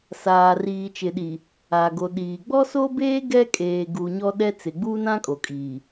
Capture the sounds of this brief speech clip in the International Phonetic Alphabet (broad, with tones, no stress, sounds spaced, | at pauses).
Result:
s aː˨ r iː˨ t͡ʃ ɪ˨ ɗ i˨ | aː˨ ɡ o˨ ɗ iː˨ ɡ͡b ɔ˦ s o˦ b eː˦ ɡ ɛ˦ kʼ eː˨ ɡ u˨ ɲ ɔ˦ ɗ ɛ˦ t͡s ɪ˨ ɡ͡b uː˦ n ã˦ kʼ o˨ kʼ iː˨